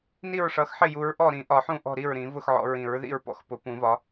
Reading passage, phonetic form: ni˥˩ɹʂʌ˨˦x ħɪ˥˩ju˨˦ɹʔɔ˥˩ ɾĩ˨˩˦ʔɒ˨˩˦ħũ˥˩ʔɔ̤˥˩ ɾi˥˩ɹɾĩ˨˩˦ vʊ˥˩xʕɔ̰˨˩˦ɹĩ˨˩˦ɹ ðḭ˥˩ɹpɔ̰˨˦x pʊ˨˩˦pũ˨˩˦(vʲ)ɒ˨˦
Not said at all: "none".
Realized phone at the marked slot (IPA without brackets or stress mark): v